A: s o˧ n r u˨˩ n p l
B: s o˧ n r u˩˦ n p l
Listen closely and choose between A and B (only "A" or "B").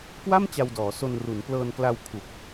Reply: B